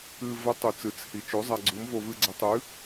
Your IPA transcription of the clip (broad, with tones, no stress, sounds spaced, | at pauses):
ɨ˧ v ə˨˥ tˤ u˧ t͡s ɨ˨˥ t͡s h i˧ t͡ʃ o˨˥ zˤ a˧ ɡ͡ǀ u˨˥ m v o˧ v ɨ˧ ɡ͡ǀ ə˨˥ tˤ ɨ˨˥